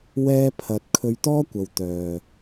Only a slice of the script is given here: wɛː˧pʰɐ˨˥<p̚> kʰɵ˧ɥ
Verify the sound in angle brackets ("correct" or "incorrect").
incorrect